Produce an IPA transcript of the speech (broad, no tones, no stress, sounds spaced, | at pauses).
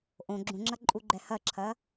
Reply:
ʔ õ ɡ͡ǁ ũ ŋ͡ǁ ɐ ǃʼ u ɡ͡ǃ ɛ h ɐ ǁʰ ɐ